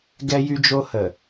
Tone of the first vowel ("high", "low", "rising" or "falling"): high